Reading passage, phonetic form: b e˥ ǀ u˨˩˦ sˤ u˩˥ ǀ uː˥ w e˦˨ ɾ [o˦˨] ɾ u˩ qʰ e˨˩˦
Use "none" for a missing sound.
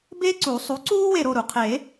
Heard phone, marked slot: o˦˨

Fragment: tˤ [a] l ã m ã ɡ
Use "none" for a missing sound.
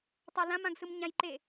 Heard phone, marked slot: a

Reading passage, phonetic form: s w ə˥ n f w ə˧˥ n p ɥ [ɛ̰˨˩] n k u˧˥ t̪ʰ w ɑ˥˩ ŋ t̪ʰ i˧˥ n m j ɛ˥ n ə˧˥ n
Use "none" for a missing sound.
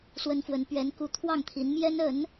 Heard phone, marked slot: ɛ˧˥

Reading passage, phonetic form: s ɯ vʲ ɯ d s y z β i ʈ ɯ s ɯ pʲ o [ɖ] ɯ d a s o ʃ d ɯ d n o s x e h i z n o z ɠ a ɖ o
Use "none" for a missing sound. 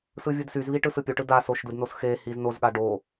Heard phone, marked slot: ʈ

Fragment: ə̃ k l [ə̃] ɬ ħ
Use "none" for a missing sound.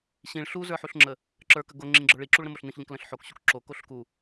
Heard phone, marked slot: ə̃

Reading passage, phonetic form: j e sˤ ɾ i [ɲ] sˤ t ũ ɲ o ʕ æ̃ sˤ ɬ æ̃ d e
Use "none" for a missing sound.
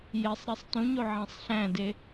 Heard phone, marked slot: none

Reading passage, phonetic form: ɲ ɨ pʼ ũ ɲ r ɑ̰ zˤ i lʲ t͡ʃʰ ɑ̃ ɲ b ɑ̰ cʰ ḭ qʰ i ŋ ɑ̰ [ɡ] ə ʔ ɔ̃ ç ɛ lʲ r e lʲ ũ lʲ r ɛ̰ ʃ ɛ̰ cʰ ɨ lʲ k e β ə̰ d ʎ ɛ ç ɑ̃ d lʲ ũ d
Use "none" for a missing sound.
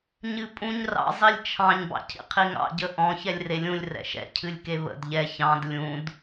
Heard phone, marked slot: ɟ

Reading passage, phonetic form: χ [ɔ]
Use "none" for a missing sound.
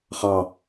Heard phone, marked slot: ɑ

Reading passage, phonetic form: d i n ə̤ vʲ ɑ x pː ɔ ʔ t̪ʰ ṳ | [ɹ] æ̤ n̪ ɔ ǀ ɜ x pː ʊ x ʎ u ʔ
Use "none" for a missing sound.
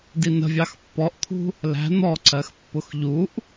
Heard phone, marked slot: l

